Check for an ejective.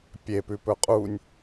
present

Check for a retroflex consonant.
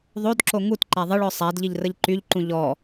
present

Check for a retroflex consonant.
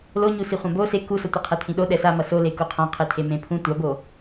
absent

